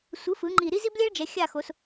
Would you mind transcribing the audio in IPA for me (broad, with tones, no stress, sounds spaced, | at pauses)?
sʷ ɯ˩˥ f ɯ˩˧ ŋ͡ǃ i˨˩ ɾ i˥ z i˥ b lʲ ɛ˥ ɭ d͡ʒ ɛ˩˧ xʲ a˦˨ x o˩˧ s